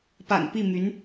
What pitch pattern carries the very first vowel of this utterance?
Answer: low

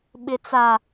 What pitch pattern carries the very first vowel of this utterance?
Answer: high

